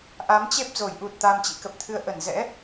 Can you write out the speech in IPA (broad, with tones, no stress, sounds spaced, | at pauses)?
ʔ a˨˦ m t͡ɕ e˦˥ p̚ z o˧˩ j ʔ u˨˩ t̚ t̪ a˧ m t͡ɕ ḭ˧˥ k ə˨˩ p̚ t̪ʰ ɨ˧ ə̯ ʔ ə˧˩ n z ɛ̰˧˥